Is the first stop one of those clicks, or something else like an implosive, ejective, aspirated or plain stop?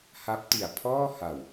plain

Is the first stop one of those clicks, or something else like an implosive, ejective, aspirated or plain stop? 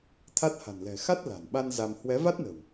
aspirated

